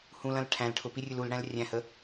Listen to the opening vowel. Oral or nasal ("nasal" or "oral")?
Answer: nasal